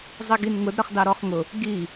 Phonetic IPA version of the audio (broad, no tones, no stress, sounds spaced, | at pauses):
zˤ i ɡ i n ŋ ʊ d ɾ ʌ χ d ɑ ɾ ɔ χ ŋ ʊ | ɡ i